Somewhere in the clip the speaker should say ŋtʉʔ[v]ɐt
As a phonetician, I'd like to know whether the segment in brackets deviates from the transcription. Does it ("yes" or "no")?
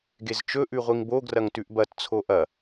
yes